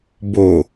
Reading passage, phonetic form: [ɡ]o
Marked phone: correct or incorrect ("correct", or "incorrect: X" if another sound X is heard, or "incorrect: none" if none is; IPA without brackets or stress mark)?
incorrect: b